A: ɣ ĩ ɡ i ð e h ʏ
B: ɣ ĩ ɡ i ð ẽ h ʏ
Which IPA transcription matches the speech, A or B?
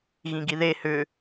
A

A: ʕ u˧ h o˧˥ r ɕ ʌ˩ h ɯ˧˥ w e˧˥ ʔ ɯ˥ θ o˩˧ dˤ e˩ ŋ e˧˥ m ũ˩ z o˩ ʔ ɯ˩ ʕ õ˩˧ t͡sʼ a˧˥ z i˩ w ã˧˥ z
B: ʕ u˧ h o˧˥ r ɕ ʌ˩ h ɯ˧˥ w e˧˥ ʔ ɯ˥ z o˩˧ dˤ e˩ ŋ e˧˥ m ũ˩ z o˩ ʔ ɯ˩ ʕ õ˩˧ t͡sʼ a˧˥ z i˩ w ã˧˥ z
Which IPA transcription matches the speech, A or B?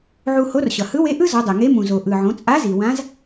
B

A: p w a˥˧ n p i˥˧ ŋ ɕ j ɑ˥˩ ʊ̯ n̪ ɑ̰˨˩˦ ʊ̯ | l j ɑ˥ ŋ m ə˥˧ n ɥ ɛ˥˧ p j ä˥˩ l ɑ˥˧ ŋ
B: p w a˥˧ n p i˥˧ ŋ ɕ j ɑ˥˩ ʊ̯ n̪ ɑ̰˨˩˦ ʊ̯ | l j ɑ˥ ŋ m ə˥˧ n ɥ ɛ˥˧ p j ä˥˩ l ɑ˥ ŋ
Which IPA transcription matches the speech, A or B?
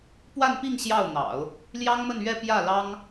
B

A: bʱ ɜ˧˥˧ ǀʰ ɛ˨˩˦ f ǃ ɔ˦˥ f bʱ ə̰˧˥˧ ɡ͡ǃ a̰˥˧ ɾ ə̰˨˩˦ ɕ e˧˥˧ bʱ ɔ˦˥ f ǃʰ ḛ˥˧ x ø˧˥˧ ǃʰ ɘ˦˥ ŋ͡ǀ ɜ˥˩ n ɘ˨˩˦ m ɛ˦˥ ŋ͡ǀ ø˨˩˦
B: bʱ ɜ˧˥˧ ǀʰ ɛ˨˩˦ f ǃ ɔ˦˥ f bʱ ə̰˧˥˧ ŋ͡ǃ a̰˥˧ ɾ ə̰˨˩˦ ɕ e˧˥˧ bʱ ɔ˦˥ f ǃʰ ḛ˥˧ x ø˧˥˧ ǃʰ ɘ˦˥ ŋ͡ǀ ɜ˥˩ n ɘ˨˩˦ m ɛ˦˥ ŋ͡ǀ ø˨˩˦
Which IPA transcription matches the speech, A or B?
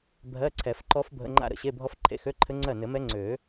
B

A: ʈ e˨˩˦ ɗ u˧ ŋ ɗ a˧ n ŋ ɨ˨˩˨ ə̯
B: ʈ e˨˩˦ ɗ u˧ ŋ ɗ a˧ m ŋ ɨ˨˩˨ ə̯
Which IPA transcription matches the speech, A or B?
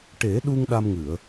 B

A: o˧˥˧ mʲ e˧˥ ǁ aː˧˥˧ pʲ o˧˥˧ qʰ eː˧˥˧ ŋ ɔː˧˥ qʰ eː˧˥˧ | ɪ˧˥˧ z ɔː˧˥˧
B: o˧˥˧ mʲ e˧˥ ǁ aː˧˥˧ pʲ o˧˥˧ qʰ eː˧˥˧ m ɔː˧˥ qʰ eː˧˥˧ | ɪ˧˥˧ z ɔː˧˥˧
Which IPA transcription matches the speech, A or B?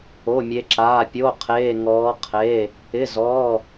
A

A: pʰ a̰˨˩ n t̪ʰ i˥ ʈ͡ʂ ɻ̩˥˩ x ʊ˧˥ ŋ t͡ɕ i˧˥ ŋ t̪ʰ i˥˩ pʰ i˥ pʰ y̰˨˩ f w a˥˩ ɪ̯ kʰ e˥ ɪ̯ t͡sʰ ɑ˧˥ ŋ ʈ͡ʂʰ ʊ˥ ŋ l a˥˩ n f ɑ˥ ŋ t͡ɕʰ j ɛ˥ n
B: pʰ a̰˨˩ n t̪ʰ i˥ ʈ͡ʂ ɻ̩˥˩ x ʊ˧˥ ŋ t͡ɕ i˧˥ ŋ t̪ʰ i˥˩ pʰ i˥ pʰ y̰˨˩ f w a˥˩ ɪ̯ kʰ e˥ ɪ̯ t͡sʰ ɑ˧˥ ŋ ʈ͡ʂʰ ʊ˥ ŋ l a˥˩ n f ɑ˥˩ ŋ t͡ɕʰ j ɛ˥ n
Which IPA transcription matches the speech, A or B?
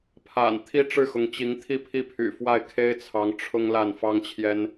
A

